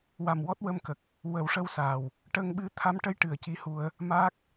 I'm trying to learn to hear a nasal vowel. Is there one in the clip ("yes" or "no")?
no